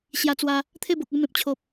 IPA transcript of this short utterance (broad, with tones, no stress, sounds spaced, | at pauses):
ɕ j a˧ t͡s w a˧ | t̪ʰ e˥˧ b o˨ k̚ e˧ m ẽ˨ p̚ t͡ɕʰ o˨ p̚